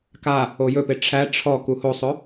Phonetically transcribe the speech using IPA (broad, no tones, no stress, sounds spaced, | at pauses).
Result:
k a | o j ɵ p e ʈ͡ʂʰ æ ʈ͡ʂʰ ɔ k u h o sˤ ɵ